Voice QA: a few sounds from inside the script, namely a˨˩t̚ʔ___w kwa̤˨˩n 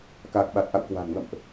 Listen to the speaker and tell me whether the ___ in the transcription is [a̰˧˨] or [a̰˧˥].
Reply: a̰˧˨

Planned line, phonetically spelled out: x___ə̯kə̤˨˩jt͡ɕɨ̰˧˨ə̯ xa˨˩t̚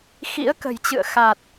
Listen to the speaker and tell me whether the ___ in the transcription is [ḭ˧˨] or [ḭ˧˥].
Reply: ḭ˧˥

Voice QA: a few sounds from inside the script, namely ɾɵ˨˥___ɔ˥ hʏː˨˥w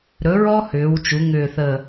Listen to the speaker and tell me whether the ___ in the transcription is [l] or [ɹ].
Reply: ɹ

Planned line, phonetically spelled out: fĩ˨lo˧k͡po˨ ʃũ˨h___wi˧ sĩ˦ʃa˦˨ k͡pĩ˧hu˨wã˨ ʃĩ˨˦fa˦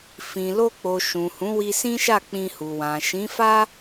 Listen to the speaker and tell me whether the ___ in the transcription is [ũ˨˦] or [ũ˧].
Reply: ũ˨˦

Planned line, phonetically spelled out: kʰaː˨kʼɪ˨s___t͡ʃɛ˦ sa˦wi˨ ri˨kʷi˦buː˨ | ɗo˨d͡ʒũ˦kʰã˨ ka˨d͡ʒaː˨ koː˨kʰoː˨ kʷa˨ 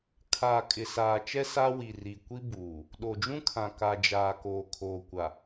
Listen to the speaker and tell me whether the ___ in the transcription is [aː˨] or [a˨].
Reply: aː˨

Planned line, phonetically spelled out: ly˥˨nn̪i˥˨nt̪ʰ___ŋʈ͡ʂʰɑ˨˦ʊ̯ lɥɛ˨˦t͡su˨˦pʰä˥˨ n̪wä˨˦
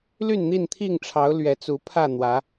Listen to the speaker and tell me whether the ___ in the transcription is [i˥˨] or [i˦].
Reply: i˥˨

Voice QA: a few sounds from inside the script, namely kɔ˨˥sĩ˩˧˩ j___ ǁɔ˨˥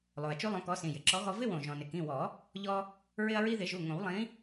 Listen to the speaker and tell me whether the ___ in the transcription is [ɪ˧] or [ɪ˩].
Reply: ɪ˩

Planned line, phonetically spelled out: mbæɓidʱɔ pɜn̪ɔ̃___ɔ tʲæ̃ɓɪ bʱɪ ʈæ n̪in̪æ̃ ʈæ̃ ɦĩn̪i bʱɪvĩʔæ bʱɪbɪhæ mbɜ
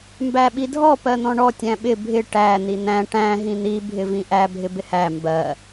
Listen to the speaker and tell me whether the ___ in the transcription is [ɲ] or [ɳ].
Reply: ɳ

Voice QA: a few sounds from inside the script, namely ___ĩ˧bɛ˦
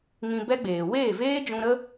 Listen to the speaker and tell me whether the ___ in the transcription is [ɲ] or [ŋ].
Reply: ŋ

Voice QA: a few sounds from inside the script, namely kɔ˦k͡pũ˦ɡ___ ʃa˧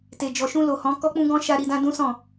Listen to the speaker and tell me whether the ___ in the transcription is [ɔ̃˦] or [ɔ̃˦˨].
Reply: ɔ̃˦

